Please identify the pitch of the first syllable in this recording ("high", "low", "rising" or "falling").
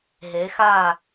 rising